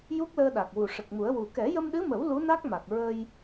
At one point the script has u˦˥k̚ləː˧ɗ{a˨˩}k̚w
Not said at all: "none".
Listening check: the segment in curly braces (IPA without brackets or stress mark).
a˨˩